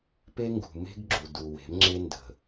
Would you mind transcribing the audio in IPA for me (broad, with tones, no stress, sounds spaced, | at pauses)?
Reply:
p e˦ ŋ ɡ ṳ˨ m e̤˦ ɡ ɡ͡ǁ u˨ d u˨ w e̤˨˦ m ŋ͡ǁ e˦ n d ə̤˨